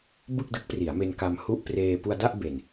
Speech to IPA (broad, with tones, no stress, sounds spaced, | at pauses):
b ɯ˥˩ k̚ d ɯ˦˥ k̚ p r i˩˦ a̯ m e˧ n k a˧ m h u˥˩ ʔ p r eː˧ p u˧ a̯ d a˥˩ ʔ b e˨˩ n